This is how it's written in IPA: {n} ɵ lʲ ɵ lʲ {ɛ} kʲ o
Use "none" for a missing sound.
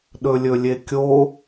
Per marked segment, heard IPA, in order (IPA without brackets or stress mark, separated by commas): ɗ, e